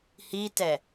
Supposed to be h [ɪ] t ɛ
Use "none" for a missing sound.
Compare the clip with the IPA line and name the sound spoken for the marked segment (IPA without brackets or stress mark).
i